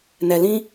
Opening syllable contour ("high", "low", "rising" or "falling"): low